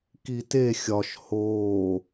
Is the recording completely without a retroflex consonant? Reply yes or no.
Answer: yes